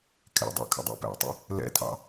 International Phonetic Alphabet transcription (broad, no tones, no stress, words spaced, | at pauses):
kʰɛ̰dˤæ̰ kʰə̰dˤæ̰pæ̰tˤə̰ | lɛ̰tʰɑ̰